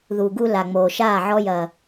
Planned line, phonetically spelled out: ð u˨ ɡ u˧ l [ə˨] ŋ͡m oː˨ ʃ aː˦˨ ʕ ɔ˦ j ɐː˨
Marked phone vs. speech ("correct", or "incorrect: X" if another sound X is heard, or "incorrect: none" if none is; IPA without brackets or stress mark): incorrect: a˨